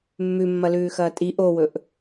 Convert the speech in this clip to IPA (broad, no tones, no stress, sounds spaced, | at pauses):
mː ʉ mː ɐ l ʉː x ɐː tʼ i ʔ o w ɵ ʔ